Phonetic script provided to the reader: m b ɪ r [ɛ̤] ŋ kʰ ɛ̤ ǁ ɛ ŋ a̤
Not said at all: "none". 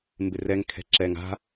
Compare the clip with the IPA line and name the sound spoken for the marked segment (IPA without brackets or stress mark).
ɛ